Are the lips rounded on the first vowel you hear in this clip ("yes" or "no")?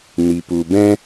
no